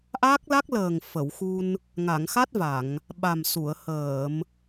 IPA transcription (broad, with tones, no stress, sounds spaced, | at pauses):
ʔ a˦˥ k̚ l a˦˥ k̚ l əː˨˩ ŋ f ə˨˩˨ w x u˧ n | ŋ a˨˩˨ ŋ x a˦˥ t̚ v a˨˩˨ ŋ | ɓ a˨˩ m s u˨˩˨ ə̯ h əː˨˩˨ m